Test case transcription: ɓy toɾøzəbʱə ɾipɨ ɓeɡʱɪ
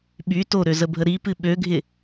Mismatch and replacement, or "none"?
e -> ø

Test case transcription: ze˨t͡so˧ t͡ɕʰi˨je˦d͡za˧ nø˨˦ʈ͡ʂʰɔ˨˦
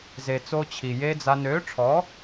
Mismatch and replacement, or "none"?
none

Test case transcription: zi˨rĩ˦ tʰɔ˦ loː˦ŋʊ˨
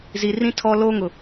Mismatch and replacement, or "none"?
none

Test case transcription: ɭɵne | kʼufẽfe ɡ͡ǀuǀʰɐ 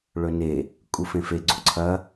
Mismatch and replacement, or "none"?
none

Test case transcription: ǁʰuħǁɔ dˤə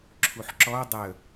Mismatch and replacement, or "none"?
none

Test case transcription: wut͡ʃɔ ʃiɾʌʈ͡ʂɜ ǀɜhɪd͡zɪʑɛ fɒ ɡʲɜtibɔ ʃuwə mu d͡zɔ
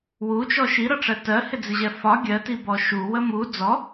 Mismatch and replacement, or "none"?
ǀ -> t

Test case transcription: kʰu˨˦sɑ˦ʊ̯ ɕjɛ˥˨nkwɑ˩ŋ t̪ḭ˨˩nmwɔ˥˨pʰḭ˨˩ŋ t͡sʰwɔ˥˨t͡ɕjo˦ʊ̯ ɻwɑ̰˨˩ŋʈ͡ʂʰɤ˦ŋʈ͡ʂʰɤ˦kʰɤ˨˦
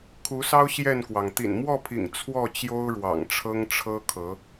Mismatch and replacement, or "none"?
none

